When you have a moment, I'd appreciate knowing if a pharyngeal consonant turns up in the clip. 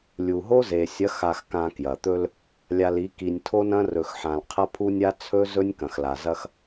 yes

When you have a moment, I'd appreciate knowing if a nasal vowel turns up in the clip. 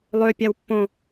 yes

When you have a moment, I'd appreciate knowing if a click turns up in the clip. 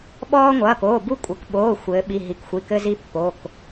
no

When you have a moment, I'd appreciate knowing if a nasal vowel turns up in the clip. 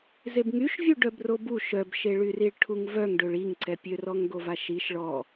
no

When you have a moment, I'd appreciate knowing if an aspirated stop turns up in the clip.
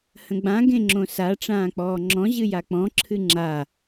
yes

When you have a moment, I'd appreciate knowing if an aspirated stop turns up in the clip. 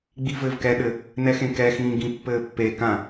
no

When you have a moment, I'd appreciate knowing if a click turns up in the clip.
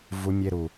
no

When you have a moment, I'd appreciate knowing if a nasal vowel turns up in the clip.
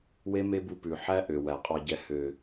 no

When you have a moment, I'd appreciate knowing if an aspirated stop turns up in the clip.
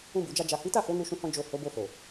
no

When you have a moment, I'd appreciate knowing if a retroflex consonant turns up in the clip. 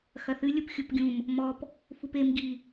no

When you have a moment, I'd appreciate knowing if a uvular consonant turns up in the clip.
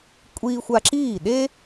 no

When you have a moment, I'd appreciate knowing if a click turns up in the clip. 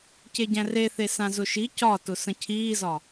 no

